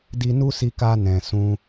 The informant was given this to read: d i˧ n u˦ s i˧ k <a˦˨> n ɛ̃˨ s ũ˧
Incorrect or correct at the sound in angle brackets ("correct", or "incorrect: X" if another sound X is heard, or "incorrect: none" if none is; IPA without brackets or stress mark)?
incorrect: a˧